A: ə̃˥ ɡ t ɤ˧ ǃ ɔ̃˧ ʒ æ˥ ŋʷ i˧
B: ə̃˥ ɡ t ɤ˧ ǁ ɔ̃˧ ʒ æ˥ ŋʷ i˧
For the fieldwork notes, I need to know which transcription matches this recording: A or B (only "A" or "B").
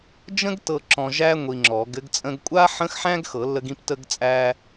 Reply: B